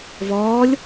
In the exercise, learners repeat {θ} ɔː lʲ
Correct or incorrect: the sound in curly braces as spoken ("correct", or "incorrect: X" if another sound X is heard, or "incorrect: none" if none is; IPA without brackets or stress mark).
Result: incorrect: v